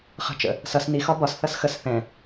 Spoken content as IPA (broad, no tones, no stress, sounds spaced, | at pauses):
χ ə̤ t͡ʃ ə̰ | s ʌ s n i x ɒ b ɒ s θ ʌ s x ə s θ ɛ̃